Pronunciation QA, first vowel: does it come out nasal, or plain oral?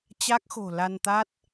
oral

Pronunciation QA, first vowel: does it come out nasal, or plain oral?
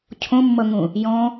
nasal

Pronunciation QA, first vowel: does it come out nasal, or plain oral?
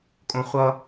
nasal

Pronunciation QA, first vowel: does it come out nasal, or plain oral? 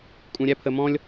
nasal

